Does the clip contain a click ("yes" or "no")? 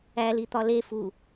no